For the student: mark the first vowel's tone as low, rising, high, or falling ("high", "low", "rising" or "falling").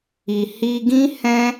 low